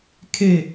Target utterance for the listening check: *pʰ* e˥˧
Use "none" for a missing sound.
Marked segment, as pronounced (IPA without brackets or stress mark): kʰ